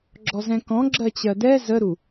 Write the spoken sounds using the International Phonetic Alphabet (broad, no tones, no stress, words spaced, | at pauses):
ɡ͡ǁɔzɛ̃kɔ̃ ɡ͡ǁɜt͡ɕɜdɛ zəɾu